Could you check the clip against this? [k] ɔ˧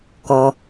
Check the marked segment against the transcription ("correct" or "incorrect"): correct